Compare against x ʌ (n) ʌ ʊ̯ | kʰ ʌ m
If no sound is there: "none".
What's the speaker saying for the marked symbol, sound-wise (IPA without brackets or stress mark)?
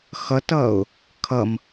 t